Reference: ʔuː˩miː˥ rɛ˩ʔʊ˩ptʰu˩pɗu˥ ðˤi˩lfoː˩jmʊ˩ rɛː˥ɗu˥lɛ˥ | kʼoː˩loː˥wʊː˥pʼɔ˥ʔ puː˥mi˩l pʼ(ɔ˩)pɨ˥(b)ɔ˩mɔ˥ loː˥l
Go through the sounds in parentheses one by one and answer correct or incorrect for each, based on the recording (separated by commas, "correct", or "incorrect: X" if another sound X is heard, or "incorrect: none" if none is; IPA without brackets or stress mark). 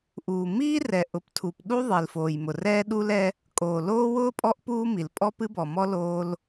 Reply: incorrect: ɔ˥, correct